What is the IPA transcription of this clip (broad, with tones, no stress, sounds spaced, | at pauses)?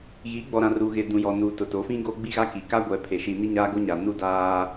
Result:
ɣ i˨˦ ɡ͡b ɔ˨ ɾ ã˨ r u˨ ɣ ɪ˨ d ũ˨ j ɔ˨ n uː˨ t ʊ˨ t o˨˦ f ĩ˦ ɡ o˦ ɡ͡b i˦ ɣ a˦ k i˨ k a˦ ɡʷ ɛ˨ pʰ e˨ ʃ i˨ n i˦ ɲ aː˦ ɡ o˦ ɲ a˨ n u˦˨ d aː˦